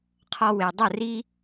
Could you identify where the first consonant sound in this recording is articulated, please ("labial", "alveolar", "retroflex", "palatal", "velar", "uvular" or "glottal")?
uvular